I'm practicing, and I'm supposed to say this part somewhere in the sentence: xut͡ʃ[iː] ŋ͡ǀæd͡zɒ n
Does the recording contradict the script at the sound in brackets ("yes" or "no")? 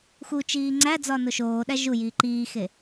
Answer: no